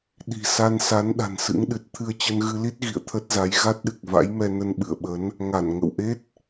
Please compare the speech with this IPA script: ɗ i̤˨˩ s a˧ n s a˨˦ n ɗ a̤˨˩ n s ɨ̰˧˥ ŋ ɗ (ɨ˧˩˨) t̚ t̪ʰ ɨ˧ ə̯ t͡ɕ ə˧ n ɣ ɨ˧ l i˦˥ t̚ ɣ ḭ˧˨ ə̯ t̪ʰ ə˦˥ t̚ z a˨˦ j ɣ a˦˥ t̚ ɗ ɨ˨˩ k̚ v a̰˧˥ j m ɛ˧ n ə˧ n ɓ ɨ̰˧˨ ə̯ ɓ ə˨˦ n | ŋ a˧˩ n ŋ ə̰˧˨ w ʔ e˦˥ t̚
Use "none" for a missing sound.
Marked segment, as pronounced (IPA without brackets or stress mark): ɨ˨˩